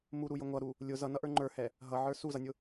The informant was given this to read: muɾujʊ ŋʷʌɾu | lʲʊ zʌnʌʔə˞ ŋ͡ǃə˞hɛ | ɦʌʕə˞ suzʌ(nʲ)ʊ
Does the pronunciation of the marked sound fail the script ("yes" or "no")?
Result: no